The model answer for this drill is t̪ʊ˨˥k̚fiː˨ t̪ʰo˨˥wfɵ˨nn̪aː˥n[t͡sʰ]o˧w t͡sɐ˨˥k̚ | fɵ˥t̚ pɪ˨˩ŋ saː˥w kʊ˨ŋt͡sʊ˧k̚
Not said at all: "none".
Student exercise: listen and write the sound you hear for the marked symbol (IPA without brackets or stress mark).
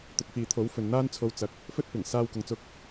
t͡sʰ